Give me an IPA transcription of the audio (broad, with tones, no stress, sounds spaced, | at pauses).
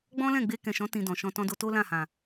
ɡ͡b ɔ̃˦ l ɛ̃˦˨ ɡ͡b e˧ k ɛ̃˨ ʃ ɔ̃˨˦ t ĩ˧ d ɔ̃˨ ʃ ɔ̃˧ t ɔ̃˦ d o˦ t o˦ l ã˦˨ h ã˨